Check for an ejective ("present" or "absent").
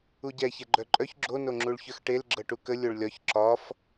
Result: present